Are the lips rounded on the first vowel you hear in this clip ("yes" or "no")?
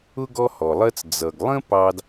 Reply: yes